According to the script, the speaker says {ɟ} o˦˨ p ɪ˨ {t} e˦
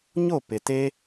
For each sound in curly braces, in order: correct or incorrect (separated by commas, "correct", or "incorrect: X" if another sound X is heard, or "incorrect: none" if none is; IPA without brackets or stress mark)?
incorrect: ɲ, correct